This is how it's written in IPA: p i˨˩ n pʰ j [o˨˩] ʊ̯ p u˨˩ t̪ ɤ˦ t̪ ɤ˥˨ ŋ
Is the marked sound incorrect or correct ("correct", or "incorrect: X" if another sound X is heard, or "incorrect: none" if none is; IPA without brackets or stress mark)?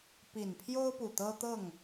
incorrect: o˦